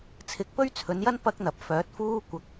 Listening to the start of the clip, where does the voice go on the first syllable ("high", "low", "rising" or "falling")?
rising